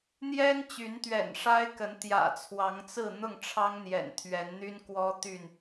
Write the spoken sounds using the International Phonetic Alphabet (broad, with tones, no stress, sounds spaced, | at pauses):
n̪ j ɛ˦ n t͡ɕ y˨˦ n t̪ ɥ ɛ̰˨˩ n ʂ a˦ ɪ̯ k ə˨˦ n t̪ j ä̰˨˩ t͡sʰ w ɑ˨˦ ŋ t͡s ɹ̩˥˨ n̪ ʊ˥˨ ŋ ʈ͡ʂʰ ɑ˦ ŋ n̪ j ɛ̰˨˩ n t̪ʰ ɥ ɛ˨˦ n n̪ y˦ n k w ɔ˦ t̪ y˥˨ n